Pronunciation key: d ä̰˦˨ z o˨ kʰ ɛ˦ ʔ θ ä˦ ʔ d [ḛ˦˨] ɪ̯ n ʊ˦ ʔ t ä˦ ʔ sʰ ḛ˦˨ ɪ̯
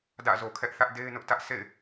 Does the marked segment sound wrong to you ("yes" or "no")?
yes